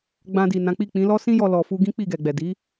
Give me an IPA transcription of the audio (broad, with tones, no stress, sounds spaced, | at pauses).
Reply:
ɡ͡b ã˧ d i˨ n ã˨˦ k͡p i˦˨ k͡p ĩ˨˦ l ɔ˦ s ĩ˦ j ɔ˧ l ɔ˧ f u˦ ɡ ĩ˦ k͡p i˦˨ ɡ ɛ˨ ɡ͡b ɛ˨ d i˨˦